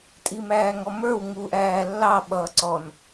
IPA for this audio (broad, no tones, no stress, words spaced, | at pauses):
tʼimæːŋɔmə˞w ŋuːʔæːlːɑ ɓʌːǀɔn